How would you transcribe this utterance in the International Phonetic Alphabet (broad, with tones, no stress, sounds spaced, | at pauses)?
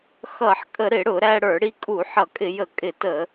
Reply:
x ʌ˧˩˧ ħ kʼ ə˧˩˧ ɾ ɪ˧˩˧ ɽ ʊ˧˩˧ ɾ æ˧ ɽ ə˞˧˩˧ ɽ i˧ kʼ u˧˩˧ ħ ʌ˧˩˧ kʼ ɪ˧˩˧ j ə˧˩˧ kʼ ɪ˧˩˧ t ə˧˩˧